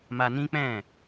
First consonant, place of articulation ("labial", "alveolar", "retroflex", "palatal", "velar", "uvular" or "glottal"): labial